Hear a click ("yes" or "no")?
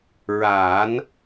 no